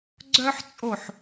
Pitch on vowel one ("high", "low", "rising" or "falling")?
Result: high